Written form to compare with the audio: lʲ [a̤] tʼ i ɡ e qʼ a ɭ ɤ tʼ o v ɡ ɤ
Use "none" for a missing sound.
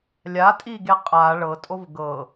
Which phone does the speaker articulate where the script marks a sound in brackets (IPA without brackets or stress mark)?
a